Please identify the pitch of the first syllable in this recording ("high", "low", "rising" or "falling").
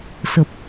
low